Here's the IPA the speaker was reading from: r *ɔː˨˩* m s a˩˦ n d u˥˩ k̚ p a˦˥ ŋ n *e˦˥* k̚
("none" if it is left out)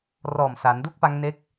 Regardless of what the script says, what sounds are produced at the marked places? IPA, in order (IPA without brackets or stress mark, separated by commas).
ɔː˨˩, e˦˥